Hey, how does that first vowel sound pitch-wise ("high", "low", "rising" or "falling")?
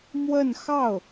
falling